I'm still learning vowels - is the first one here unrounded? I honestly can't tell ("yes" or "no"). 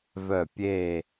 no